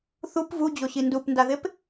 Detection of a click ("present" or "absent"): absent